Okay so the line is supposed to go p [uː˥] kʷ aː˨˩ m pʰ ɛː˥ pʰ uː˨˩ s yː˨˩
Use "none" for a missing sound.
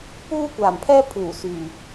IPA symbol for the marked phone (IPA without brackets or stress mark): uː˥